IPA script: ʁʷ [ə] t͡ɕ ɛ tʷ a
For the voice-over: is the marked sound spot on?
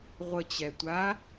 yes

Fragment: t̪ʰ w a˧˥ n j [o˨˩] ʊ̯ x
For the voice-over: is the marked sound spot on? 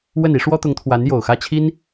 yes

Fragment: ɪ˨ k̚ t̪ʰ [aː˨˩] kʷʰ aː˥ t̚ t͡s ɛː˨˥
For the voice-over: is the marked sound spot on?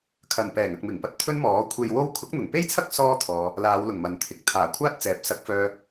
yes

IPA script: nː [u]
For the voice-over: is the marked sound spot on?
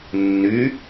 no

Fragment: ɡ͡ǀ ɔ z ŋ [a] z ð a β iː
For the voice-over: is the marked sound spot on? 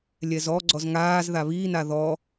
no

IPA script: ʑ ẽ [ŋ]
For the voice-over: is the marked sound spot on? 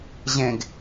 no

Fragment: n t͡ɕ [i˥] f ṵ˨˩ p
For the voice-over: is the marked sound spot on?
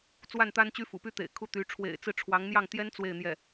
no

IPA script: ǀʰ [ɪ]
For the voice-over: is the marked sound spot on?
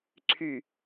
no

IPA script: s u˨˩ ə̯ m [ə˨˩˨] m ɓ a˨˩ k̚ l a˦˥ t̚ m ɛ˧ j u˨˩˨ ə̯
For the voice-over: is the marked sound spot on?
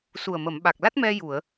yes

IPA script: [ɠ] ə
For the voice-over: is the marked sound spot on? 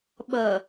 no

